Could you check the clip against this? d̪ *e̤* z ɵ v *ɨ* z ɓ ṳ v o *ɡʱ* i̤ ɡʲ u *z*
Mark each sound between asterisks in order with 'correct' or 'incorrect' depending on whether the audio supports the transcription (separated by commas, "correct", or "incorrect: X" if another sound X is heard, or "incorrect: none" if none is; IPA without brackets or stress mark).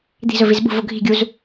incorrect: i̤, incorrect: i, correct, correct